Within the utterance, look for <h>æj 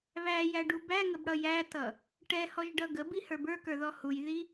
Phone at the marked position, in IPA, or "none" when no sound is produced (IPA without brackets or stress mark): β